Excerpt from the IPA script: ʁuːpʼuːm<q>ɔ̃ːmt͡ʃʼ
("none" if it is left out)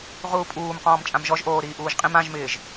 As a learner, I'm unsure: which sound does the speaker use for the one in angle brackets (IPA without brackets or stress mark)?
q